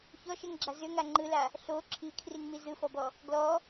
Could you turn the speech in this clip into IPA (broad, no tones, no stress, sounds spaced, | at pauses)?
ç ɔ ʃ ɛ ŋ ɡ͡ǁ a z ʏ ŋ a ŋ͡ǃ ɯ l a | ɬ o ǁʰ i kʰ r i ŋ m i z ɯ f ɔ b ɔ | ɡ l ɔ